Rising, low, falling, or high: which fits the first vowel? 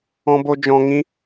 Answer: high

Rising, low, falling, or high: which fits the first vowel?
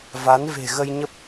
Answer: rising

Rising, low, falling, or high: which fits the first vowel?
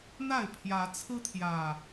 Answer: falling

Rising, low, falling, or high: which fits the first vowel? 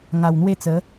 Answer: low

